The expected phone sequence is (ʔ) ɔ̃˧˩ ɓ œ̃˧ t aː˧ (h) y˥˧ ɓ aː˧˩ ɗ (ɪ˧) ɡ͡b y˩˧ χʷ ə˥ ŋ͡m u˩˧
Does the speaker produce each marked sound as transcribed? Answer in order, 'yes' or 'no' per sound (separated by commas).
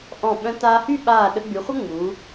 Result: yes, yes, no